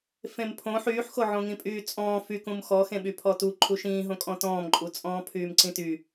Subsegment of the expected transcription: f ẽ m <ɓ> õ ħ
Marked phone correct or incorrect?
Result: incorrect